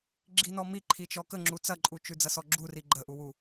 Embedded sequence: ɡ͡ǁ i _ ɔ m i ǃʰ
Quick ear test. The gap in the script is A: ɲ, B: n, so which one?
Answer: B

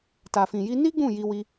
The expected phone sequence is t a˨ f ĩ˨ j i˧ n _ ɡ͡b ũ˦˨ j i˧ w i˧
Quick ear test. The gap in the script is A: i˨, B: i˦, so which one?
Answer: B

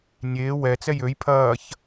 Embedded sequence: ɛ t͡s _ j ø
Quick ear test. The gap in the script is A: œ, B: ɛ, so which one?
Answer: B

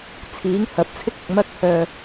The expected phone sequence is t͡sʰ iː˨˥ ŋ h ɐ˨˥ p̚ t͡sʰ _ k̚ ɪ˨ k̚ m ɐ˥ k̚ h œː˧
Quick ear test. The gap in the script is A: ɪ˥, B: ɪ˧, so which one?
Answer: A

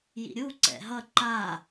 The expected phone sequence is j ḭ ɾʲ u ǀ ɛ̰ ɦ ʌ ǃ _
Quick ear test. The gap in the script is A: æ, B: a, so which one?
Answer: B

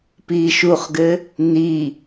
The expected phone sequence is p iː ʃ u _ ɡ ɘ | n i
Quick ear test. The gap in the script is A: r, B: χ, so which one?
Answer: B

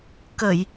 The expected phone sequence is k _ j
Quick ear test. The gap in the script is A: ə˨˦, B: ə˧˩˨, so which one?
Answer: B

